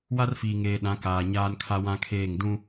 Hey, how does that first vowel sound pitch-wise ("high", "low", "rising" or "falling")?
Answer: high